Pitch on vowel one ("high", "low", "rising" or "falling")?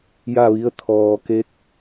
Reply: falling